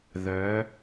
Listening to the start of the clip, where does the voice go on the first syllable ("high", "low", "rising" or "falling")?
rising